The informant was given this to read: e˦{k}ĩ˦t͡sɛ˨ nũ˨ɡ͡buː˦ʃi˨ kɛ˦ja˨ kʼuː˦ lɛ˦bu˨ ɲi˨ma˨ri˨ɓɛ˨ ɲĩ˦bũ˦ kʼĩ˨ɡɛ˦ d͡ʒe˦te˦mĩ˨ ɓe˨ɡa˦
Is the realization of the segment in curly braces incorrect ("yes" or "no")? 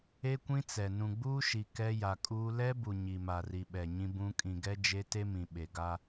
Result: yes